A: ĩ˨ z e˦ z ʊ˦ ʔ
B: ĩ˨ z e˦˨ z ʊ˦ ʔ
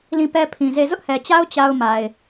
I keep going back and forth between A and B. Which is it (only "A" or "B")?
B